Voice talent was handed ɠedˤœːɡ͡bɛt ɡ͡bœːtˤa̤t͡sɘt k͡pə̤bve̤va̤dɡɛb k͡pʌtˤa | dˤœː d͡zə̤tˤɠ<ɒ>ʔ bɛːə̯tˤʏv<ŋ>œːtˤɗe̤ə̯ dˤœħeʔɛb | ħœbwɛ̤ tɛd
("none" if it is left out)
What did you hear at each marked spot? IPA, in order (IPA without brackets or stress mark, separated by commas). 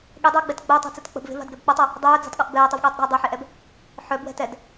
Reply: ʌ, ɠ